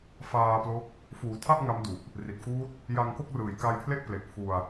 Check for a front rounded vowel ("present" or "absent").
absent